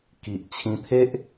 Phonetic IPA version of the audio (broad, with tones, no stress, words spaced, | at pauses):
ki˨ʔ t͡ɕʰĩ˧t̪ʰe˦ʔ